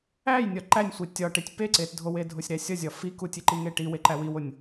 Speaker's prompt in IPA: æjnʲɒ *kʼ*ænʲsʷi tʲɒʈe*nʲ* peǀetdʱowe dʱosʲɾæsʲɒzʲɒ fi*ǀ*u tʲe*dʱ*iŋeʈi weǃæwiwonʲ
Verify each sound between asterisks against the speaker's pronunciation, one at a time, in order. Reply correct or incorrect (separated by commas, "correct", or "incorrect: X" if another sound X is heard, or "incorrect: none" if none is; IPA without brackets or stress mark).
incorrect: ǃ, incorrect: tʲ, incorrect: k, incorrect: ǃ